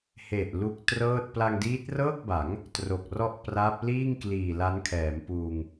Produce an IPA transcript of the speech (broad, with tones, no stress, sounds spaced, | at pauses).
h e˨˩ ʔ l u˦˥ k̚ t r ɤː˥˩ t̚ p l a˧ ŋ d iː˦˥ t̚ r ɤː˥˩ k̚ b a˩˦ ŋ | t r o˨˩ k̚ r ɔ˥˩ ʔ p r a˦˥ p̚ l iː˥˩ ŋ k l iː˨˩ l a˦˥ n kʰ ɛː˩˦ m p uː˧ ŋ